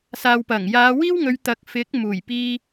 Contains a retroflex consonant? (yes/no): no